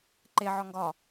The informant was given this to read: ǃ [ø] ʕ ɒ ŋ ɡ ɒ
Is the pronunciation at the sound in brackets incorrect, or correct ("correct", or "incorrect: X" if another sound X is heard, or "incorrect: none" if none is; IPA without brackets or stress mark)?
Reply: incorrect: e